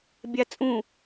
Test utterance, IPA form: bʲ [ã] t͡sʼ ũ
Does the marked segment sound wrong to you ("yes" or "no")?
yes